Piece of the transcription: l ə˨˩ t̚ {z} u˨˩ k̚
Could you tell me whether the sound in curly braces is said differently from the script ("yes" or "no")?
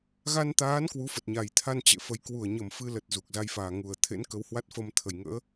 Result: no